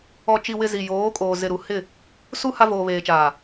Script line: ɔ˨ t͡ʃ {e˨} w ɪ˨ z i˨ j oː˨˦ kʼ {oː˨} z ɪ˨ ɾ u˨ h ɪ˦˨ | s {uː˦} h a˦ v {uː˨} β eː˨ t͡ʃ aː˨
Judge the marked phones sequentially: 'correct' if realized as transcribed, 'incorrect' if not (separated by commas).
incorrect, correct, incorrect, incorrect